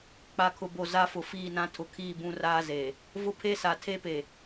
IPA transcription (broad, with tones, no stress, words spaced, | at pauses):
k͡pa˨kʰʊ˨bo˨ za˦fʊ˨fiː˦˨nã˦ tʰʊ˨kʰiː˦˨bũ˦ raː˦zeː˨ | vʊ˦pʰe˦sa˨ tʰe˦pe˨